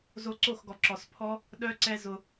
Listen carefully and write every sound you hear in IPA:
z o˧ ǀ o˦˨ x ɡ ɔ˨ ǁ ɔ˨ s pʰ ɔ˦ | ɗ œ˦ ǀ ɛ˦ z ʊ˧

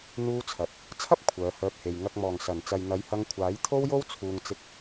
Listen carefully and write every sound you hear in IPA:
n̪ uː˥ t͡sʰ ɐ˨˥ t̚ | t͡sʰ ɐ˥ p̚ kʷʰ œː˨˧ h œː˧ p̚ h e˨ j ŋ ɐ˨ k̚ m ɔː˨˩ ŋ s ɐ˨˩ n t͡s ɐ˨ j n̪ ɐ˨˥ j h ɐ˧ ŋ kʷʰ aː˨˥ j t̪ʰ o˥ w j o˥ w t͡sʰ uː˨ ŋ t͡s ɪ˧ k̚

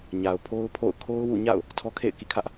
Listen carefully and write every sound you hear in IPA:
ɲ a˨ ʊ̯ pʰ o˦ ʊ̯ pʰ o̰˦˨ ʊ̯ kʰ o˦ ʊ̯ w ṵ˦˨ ɲ a̰˦˨ ʊ̯ | tʰ ɔ˦ kʰ ḛ˦˨ ɪ̯ k ḭ˦˨ kʰ ä˦ ʔ

